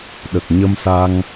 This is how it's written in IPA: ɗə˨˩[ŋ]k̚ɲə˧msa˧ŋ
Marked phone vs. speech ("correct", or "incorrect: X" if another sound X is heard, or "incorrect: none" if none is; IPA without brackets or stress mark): incorrect: none